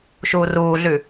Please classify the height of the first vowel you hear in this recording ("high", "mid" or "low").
high